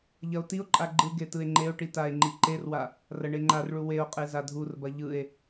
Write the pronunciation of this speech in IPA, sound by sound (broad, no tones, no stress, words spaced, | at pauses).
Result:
ʎɐo̯tio̯ǃʼa ɡ͡ǃɯɡe tɯe̯ŋ͡ǃeo̯ʈi tae̯ŋ͡ǃiǃerwa | rɐɳeŋ͡ǃarɭu weo̯qʼe zadʱurbɐ ʎɯe̯